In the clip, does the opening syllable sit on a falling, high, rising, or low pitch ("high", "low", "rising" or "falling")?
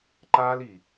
high